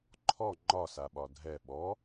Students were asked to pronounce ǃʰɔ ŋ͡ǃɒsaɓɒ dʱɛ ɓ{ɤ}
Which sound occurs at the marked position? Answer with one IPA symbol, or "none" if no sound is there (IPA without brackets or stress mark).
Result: ɔ